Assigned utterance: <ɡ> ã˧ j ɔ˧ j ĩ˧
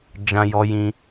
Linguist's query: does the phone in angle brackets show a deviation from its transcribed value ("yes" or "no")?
yes